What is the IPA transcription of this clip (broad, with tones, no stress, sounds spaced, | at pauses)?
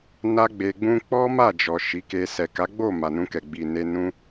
n a˦ ɡ͡b e˧ ɡ͡b ũ˦ k͡p ɔ˦ m a˦˨ d͡ʒ ɔ˨ ʃ i˨˦ k e˧ s ɛ˨ k a˨˦ ɡ͡b o˦˨ m a˨ n ũ˧ k ɛ˨ ɡ͡b i˨ n e˧ n ũ˦